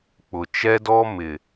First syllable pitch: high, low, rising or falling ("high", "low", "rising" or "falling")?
low